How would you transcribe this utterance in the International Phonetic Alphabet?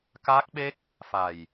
ka˦˥k̚ɓe˦˥k̚ | fa˨˩j

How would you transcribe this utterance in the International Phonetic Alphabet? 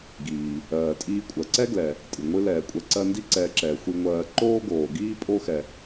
ɡiː˩ | ɜː˩tʼiː˦ kʷʼɜ˩ǀɛ˥ɡlɛ˩ | tʼɨ˩ŋʷɨ˦ lɛː˩kʷʼɛ˨ǀɜ˦ndi˥ ǀɛː˨ǁɛː˩ xʷi˨ŋʷɜː˨ ǃoː˥ɡoː˩ɡiː˥ pʼo˦xɛ˩

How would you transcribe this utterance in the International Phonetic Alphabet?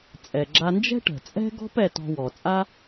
t͡sʼɛ˩ɡ͡ǁa˧nd͡ʒɛ̤˥ ʈə̤˩t͡sʼɛ̤˥ɡɔ̤˥p ɛ˧tɔ̤˧wɔ˩t͡sʼa˥

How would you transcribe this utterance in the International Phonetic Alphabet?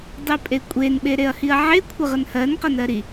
dˤipʼekʷʼen ɓeɾeɐ̯hiɐ̯ʕe kʷʰəʁənhɜn qɜnɜɾi

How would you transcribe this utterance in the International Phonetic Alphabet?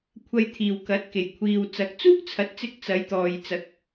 kʷʰɐ˧jt̪ʰiː˨wkɐ˨˥t̚ke˨j kʷʰiː˧w t͡sɐ˨˥k̚t͡suː˥k̚t͡sʰɐ˨˥t̚t͡sɪ˧k̚ t͡sɐ˨˧jt̪ɔː˨jt͡sɐ˨˥k̚

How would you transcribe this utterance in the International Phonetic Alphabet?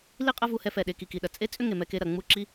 li˦qʼɐ˦ vu˧hɛ˧ fɛ˨ɗe˨ki˨ ki˨ɗɐ˨ t͡sʼe˦t͡sʼʏ˦ ŋe˨mɛ˧ke˧ ɾɐ˨ ŋ͡mu˦ǁi˦

